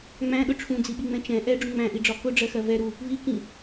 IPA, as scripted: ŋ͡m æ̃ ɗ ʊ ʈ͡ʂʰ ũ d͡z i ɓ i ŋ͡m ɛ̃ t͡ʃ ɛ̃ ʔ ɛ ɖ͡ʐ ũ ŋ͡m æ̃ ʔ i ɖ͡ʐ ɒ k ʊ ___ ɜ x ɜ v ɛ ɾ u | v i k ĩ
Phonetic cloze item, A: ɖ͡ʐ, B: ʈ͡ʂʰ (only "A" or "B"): A